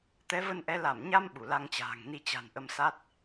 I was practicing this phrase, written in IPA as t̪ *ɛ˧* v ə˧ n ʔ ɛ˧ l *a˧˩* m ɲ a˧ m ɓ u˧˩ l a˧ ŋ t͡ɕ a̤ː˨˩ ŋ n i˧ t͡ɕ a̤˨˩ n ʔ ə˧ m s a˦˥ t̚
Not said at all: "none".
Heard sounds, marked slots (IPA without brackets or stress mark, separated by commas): ɛ˨˦, a˧˩